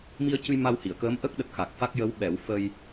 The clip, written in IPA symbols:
m i˧ ə̯ c ɨ˧ j m a˧ w h i˨˩˨ ə̯ k əː˧˥ m ʔ ə˦˥ k̚ ɗ ə˨˩ k̚ x a˨˩ k̚ f a˦˥ k̚ j ə˧˥ w ɓ ɛ˨˩˦ w f ə˧ j

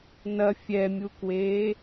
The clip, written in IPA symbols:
n ɐ fʲ ɛ mʲ u k w eː

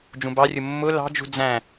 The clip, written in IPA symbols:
d͡ʒ ũ b ɑ rʲ ʊ mː ʊ l ɑ̤ d͡ʒ ṳ d͡z æ̃

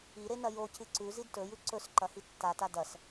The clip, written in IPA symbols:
i ɾ e n ɐ j o c ɨ ǀ ʉ z i d t ɵ j ʉ ǀ ɵ s ǃ ɐ h i tː a t a d ɐ s

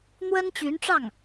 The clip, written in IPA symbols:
n̪ w ə˥ n t͡ɕ y˧˥ n ʈ͡ʂ ɑ˥˩ ŋ

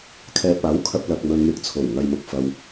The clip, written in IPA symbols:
kʰ ɛː˨ p̚ aː˨˥ w kʰ ɐ˧ p̚ l ɐ˧ k̚ m ɵ˧ n m ɪ˨˥ k̚ t͡sʰ o˨˩ w ŋ ɐ˨ j m ʊ˨ k̚ f ɐ˧ w

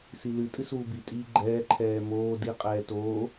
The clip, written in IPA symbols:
s i l ɨ tʼ ɨ s uː b i tʼ iː ɡ͡ǃ ɛː ǃʰ ɛː m oː d i qʼ ɛː t oː

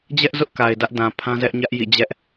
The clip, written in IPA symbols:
d͡ʑ ɛ˦ ʔ z ʊ˦ ʔ k a˨ ɪ̯ d ä˦ ʔ d ã˨ pʰ ã˦ z ɛ˦ ʔ ɲ ä˦ ʔ j ḭ˦˨ d͡ʑ ɛ˦ ʔ

